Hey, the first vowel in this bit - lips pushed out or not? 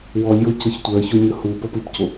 yes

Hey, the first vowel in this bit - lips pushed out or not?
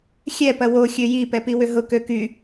no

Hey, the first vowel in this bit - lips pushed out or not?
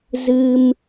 no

